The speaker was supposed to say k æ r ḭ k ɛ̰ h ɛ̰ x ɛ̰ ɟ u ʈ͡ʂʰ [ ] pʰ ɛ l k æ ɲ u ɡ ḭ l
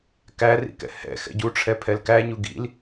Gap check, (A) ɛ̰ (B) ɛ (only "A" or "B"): B